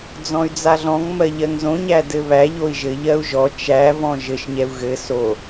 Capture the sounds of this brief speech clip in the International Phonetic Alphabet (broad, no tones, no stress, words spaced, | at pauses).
d͡zɔ̃y̯d͡zaɮɔ̃ŋ mɜʎɜŋzõ ɲædɘβæ ʎoi̯ʒɘ ʎɜu̯ʒɔ t͡ʃæ vɔ̃ʒɘʃ ɲɛu̯ɣɘ so